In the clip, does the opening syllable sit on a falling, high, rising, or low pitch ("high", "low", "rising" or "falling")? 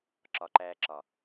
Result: low